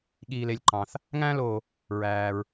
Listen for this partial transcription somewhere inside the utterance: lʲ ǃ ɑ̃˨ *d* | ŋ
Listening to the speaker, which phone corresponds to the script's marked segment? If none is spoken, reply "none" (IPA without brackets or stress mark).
θ